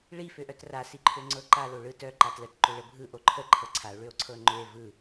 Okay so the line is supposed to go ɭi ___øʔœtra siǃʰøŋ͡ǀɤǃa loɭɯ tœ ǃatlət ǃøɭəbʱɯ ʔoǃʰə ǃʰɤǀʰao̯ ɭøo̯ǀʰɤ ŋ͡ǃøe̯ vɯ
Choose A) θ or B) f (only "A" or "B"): B